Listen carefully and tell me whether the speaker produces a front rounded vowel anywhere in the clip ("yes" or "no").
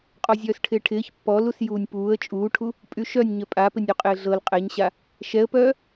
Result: yes